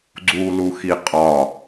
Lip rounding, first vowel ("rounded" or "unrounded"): rounded